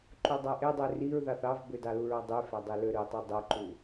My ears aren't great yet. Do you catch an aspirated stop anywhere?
no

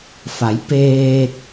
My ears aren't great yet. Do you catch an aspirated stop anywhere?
no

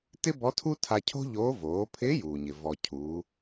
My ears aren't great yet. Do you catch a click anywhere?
no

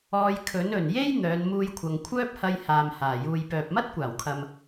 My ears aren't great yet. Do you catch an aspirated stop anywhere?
yes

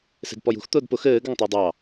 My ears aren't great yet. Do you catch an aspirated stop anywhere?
no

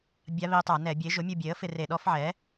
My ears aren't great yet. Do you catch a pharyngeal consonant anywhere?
yes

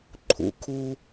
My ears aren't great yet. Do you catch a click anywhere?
yes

